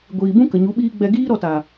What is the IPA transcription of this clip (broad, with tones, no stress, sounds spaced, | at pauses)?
ɡʷ iː˨ b ũ˦ k ə˨ ɲ u˨˦ ɓ iː˦ ɡ͡b ɛ˧ ɡ iː˦ ɾ ɔ˧ t a˨